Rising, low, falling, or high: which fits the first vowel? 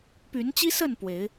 rising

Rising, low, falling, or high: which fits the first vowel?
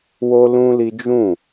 high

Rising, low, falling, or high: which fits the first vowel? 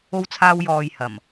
high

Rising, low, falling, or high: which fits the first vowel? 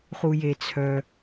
low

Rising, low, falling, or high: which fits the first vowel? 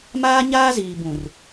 high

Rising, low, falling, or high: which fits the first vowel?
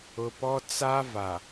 low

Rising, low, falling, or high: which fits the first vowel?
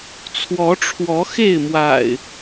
rising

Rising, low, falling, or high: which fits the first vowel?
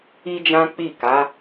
high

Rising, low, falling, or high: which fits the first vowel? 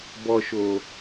low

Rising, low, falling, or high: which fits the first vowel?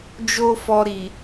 high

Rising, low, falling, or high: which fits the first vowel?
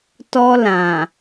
high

